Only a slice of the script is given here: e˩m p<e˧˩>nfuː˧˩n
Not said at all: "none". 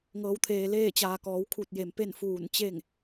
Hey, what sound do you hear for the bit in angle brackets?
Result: e˥˨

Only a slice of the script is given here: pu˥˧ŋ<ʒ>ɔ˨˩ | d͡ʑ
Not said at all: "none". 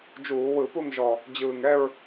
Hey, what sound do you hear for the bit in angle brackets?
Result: ʒ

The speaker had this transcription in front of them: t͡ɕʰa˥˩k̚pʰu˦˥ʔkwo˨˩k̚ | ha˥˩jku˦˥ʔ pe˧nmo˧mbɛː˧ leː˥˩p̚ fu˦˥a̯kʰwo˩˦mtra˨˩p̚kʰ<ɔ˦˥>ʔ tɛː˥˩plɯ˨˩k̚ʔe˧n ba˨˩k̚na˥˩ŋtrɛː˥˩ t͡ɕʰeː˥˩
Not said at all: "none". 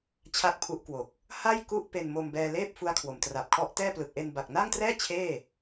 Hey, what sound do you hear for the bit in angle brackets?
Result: ɔ˦˥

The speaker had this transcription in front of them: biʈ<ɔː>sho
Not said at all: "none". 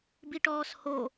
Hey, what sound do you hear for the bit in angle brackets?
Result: ɔː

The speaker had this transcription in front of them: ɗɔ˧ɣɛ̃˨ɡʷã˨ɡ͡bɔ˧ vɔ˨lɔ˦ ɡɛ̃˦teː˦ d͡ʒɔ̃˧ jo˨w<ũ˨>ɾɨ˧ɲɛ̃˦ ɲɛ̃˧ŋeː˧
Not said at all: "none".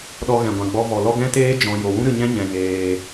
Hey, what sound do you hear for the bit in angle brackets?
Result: ũ˦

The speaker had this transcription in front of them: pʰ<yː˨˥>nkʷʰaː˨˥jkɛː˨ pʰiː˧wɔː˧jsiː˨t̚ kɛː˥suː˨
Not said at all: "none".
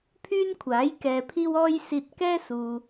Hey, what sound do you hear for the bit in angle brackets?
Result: yː˥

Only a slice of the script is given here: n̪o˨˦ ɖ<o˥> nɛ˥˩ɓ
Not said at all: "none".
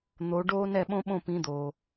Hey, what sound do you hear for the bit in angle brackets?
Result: oː˥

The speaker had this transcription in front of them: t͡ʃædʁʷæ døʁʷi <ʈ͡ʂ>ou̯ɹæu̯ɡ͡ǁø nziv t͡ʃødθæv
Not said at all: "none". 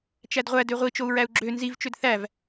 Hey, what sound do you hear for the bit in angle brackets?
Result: t͡ʃ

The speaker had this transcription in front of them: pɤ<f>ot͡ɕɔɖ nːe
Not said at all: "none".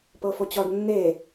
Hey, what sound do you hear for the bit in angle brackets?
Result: f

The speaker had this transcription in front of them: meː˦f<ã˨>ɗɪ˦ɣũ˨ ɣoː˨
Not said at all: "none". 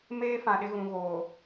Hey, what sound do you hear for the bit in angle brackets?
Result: ã˨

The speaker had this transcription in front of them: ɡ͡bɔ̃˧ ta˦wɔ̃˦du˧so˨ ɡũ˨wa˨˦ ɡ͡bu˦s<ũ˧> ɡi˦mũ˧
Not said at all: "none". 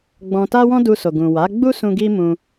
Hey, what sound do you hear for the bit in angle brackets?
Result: ũ˧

